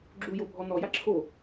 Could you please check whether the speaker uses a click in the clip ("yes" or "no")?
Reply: yes